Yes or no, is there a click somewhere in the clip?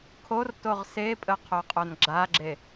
yes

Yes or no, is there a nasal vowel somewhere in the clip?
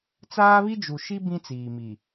yes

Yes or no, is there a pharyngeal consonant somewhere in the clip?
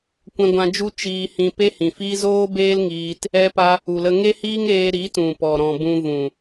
no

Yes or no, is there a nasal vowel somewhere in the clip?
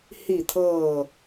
no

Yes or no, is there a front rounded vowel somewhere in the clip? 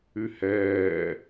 yes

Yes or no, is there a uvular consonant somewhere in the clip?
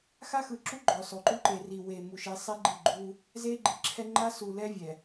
no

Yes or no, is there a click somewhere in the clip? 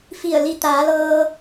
no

